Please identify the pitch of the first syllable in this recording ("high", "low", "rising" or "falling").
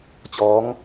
rising